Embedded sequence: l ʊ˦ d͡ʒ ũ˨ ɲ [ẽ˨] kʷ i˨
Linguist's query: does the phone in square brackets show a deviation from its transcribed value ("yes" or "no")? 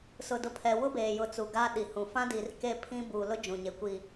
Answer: yes